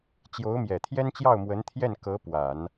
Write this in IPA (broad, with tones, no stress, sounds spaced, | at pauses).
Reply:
t͡ɕ j o˧˥ ʊ̯ m j ɛ˨˩ t̪ʰ j ɛ˥ n t͡ɕ j ɑ˥˩ ʊ̯ m w ə˧˥ n t̪ʰ j ɛ˥˩ n k ɤ˧˥ p w a˨˩˦ n